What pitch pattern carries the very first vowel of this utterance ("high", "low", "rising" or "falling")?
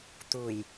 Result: low